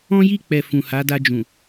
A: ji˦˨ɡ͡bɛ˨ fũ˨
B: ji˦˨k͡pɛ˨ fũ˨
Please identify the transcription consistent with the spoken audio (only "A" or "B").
B